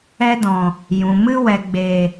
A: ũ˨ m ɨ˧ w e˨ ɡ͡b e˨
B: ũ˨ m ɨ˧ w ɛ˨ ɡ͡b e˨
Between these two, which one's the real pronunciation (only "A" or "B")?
B